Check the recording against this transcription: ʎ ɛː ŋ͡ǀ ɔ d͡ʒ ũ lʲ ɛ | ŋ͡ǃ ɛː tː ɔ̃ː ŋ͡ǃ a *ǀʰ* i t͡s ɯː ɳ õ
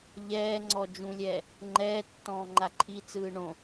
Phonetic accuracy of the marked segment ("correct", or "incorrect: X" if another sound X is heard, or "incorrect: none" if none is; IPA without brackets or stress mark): incorrect: ǃʰ